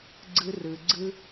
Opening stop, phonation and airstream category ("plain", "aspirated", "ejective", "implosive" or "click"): click